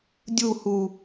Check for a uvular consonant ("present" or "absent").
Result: absent